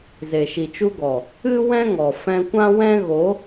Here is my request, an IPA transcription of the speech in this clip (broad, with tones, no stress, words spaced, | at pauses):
ze˨ʃi˨t͡ʃu˧ɡɔ˨ | ɨ˦ wɛ̃˦ŋɔ˨ fɛ̃˧kʷã˦ wɛ̃˦ ɣo˨˦